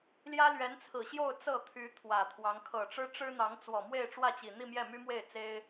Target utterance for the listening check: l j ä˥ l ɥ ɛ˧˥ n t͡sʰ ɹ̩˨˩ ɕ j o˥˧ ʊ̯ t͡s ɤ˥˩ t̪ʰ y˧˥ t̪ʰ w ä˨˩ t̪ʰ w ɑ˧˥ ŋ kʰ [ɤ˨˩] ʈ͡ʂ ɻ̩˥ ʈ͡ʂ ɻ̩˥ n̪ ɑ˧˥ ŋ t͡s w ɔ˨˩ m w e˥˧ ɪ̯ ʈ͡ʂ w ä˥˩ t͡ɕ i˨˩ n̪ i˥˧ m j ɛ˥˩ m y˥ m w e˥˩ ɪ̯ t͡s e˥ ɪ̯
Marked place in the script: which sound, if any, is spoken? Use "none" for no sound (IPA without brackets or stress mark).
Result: ɤ˨˩